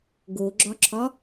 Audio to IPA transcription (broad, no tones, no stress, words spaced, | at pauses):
ɡoɡ͡ǁɒǁʰɒ